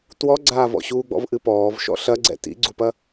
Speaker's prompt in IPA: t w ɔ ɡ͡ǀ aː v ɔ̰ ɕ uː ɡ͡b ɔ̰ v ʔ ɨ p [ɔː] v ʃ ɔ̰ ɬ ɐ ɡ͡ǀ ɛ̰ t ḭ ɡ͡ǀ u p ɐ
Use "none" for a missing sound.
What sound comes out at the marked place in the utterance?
ɔː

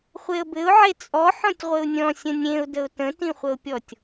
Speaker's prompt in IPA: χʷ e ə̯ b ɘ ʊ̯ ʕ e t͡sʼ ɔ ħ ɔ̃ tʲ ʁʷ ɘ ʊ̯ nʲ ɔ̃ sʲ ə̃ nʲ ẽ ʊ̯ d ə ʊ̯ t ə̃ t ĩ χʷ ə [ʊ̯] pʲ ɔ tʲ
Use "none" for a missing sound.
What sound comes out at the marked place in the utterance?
ʊ̯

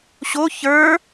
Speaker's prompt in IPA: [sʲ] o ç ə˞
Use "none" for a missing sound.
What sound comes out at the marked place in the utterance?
ɕ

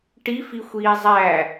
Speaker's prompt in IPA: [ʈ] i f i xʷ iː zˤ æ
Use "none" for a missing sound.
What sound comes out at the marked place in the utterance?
ʈ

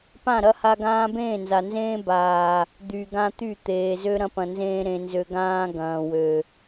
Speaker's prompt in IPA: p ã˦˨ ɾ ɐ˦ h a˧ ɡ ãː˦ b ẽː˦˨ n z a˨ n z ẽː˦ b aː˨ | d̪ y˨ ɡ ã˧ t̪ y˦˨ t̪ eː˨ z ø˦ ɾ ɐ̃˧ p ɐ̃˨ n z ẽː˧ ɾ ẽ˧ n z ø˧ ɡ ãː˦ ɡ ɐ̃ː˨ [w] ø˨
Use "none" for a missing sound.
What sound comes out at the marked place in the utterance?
w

